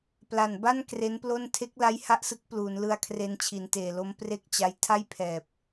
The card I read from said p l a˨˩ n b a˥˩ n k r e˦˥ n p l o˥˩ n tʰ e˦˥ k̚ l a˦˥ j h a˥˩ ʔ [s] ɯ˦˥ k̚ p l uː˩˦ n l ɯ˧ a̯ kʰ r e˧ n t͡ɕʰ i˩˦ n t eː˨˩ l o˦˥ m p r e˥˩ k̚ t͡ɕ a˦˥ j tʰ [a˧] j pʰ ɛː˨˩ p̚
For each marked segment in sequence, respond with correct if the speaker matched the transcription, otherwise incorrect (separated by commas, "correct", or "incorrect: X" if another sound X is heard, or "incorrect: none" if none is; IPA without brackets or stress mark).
correct, incorrect: a˥˩